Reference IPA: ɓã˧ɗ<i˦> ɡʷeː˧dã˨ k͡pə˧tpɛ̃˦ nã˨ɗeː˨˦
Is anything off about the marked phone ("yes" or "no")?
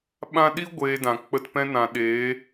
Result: no